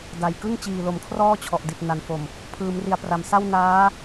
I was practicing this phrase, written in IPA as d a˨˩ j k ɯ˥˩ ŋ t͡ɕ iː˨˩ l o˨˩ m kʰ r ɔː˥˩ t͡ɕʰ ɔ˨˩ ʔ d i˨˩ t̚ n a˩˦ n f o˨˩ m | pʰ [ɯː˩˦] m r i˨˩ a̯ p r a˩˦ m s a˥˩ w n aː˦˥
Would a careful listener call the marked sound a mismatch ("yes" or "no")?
no